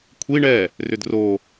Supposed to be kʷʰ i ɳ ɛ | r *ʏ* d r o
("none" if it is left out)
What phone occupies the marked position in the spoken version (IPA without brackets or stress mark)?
ʏ